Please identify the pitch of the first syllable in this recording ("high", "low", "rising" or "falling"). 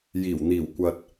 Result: low